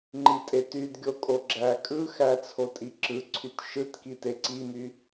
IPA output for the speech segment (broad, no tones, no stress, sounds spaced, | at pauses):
ŋ͡ǃ i tʼ e t y d ɡʲ o kʼ o ɡ͡ǁ æ kʼ ɯ x æ t͡sʰ o tʼ i ǁ ɯ ǀʰ y t ʃ ɯ t k i t e ǀ i m y